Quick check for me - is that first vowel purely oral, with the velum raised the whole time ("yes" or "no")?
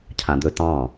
no